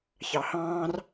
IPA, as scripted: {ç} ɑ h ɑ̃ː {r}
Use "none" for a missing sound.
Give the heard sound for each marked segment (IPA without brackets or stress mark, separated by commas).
ç, r